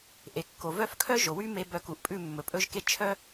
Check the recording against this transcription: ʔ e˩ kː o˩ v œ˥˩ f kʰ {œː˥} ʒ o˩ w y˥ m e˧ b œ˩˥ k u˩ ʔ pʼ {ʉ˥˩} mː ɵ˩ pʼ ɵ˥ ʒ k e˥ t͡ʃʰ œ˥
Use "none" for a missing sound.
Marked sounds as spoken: œ˥, ʉ˥˩

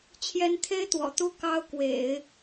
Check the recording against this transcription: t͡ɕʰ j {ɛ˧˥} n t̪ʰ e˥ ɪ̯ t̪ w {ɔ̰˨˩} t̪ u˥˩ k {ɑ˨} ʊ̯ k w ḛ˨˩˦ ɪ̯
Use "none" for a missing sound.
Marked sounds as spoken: ɛ˧˥, ɔ̰˨˩, ɑ˥

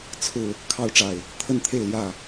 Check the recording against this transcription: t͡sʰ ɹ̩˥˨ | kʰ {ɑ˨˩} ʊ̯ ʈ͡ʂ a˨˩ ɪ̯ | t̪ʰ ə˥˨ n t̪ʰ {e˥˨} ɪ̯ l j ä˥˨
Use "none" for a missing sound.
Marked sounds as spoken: ɑ˦, e˥˨

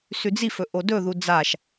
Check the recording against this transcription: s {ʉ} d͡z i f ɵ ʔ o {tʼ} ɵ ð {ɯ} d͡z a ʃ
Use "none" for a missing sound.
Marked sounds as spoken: ʉ, d, u

